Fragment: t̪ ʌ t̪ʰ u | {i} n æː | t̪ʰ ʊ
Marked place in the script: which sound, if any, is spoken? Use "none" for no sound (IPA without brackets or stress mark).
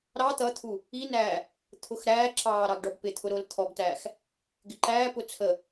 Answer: i